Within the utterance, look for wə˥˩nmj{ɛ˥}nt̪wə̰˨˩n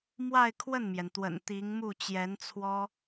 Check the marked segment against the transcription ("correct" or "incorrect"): incorrect